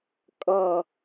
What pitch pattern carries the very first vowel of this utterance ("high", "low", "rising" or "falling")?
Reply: falling